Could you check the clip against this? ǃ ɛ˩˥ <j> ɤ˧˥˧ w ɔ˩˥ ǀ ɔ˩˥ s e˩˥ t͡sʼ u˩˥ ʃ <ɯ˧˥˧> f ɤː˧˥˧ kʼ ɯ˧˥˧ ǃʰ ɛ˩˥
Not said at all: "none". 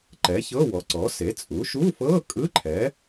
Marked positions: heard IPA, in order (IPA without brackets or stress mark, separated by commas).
ç, u˧˥˧